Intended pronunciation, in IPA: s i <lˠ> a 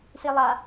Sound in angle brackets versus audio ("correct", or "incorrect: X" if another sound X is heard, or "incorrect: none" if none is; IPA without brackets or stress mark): correct